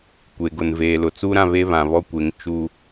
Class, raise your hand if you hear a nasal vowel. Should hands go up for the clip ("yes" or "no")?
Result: yes